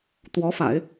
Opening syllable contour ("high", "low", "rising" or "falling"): rising